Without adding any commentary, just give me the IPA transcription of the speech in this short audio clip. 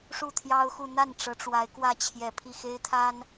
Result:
ʂ u˥˩ t̪ʰ j ɑ˥ ʊ̯ x u˥˧ n̪ a˥˩ n ʈ͡ʂ ɤ˧˥ ʈ͡ʂ w a˧˥ ɪ̯ k w ä˥˩ t͡ɕʰ j ɛ˨˩ pʰ i˥˩ x e˥ ɪ̯ t̪ʰ a˥ n

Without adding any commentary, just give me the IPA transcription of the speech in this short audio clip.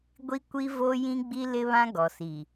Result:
ɡʷ i˦ kʷ i˦ v o˦ j ĩ˦ ɡ͡b i˦ l ɪ˦ β ã˦ ɡ ɔ˨ s i˨

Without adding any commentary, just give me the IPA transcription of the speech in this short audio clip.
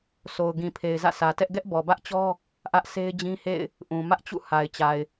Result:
sʰ o˨ ʊ̯ ɡ ĩ˨ pʰ e˨ ɪ̯ z ä̰˦˨ s ä˨ t ɛ˦ ʔ ɡ ɛ˦ ʔ b ɔ˨ b ä˦ ʔ t͡ɕ ɔ˦ | ʔ ä˦ ʔ sʰ e˦ ɪ̯ d͡ʑ ĩ˦ h ḛ˦˨ ɪ̯ | ʔ ũ˨ m ä˦ ʔ t͡ɕ ṵ˦˨ h a˨ ɪ̯ t͡ɕ a˨ ɪ̯

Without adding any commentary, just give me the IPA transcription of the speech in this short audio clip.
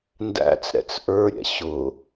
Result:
n d æ̰ t͡s ɾ ɛ̰ t͡s ʔ ə˞ ɾʲ ɛ̰ ɕ ʊ

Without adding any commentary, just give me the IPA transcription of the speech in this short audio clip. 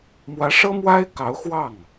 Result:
m w ä˧˥ ʂ ɤ˥ m w a˥ ɪ̯ k ɑ˧˥ ʊ̯ x w ɑ˥˩ ŋ

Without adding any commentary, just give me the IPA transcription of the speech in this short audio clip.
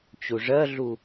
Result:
t͡ɕ u ʐ ɜ ɮ u

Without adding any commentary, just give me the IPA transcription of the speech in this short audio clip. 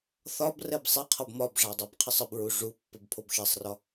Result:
θ ɒ b r ɛ b sˤ ɛ qʰ ɒ b m ɒ b ʐ a dˤ a b qʰ ə sˤ ə b ɹ u ʐ u pː ə b pʰ o b ʃ ɛ sˤ r ɒ

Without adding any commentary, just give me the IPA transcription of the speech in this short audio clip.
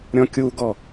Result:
ɾʲ ɔ̃ kʲ u ɡ ɔ

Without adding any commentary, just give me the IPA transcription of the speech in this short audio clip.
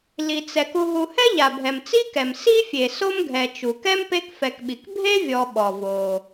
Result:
l i˩ t͡s ɛ˩ k u˨ ɦ u˨ h ɛ˥ ʎ a˩ bʱ ɛ˩ m t͡s i˥ k ɛ˩ m s i˥ fʲ e˩ s o˥ m ɡʱ ɛ˨ t͡ʃ u˩ k ɛ˥ m p e˦ k f ɛ˨ k ɓ i˩ k bʱ e˥ vʲ ɔ˨ ɓ ɔ˩ v o˩

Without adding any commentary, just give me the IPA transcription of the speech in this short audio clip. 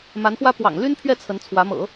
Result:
m a˧˥ n x w ä˥ p w ɑ̰˨˩ ŋ l y˥ n pʰ ɥ ɛ˥˩ t͡sʰ ə˧˥ n t͡sʰ w ä˧˥ m ɤ̰˨˩˦

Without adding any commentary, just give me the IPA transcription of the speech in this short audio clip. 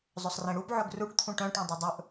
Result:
zˤ ɵ sˤ r ẽ ɽ u b ʕ ɵ ɡ r u ʈ t̪ʰ ũ ʈ œ̃ ʈ ũ dˤ œ dˤ ɵ ʔ

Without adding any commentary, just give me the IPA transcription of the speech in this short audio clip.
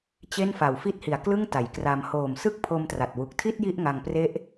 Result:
t͡ɕ e˥˩ n f a˨˩ w f i˦˥ t̚ h i˨˩ a̯ k l ɯ˥˩ ŋ t a˩˦ j k r a˧ m h oː˨˩ m s ɯ˦˥ k̚ pʰ o˧ m t r a˨˩ t̚ w u˨˩ k̚ tʰ i˥˩ t̚ j i˥˩ ʔ ŋ a˧ ŋ p r e˦˥ ʔ

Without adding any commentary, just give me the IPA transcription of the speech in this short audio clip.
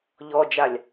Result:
ʎ ɔ d͡ʒ a lʲ

